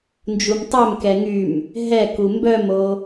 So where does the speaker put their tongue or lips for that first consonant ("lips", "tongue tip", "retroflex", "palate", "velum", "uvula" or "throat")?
tongue tip